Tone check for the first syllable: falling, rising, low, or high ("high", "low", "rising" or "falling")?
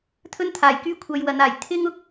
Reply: high